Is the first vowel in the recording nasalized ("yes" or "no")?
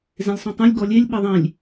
yes